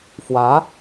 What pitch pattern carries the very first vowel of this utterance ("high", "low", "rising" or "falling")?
rising